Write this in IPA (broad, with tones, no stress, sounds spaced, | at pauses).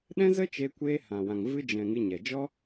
ɗ ɛ̃˦ z ə˦ t͡ʃ e˧ kʷ e˧ h ã˨ w ã˨ ŋ v ɨ˧ d͡ʒ ɛ̃˨ ŋ ɨ˧ ɲ ɛ˨ d͡ʒ ɔ˦